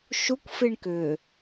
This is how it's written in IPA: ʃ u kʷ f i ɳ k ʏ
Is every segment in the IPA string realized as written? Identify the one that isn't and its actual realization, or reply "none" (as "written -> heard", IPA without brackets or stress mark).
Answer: none